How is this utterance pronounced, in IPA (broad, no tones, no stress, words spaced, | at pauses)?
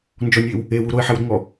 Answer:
nd͡ʒɔnʲwɪw | ewu ɾoɪ̯ħɛwɾɪŋɔ